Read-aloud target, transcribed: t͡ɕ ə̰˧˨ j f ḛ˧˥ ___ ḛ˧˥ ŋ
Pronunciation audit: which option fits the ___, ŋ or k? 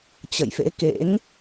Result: k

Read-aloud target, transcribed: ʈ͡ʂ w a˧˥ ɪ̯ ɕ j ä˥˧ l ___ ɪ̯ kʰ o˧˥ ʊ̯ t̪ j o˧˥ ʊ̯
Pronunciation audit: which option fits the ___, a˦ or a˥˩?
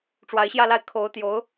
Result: a˥˩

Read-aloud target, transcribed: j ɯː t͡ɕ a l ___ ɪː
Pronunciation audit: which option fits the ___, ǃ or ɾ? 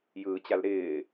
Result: ɾ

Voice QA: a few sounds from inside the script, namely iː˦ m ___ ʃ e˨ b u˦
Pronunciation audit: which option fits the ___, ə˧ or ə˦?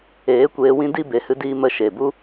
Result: ə˧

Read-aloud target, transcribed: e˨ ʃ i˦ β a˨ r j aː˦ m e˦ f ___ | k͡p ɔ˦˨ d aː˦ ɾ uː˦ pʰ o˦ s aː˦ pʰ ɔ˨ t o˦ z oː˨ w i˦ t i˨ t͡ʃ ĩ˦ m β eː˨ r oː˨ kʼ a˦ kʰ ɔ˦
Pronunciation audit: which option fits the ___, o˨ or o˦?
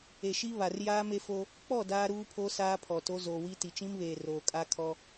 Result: o˦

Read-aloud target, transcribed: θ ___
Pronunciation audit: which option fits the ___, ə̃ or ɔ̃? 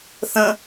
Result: ə̃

